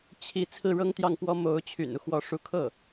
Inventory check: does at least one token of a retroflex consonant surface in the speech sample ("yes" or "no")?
yes